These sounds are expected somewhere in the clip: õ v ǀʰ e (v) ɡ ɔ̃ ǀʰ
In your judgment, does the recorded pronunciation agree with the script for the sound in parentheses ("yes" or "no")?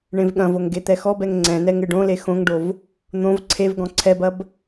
yes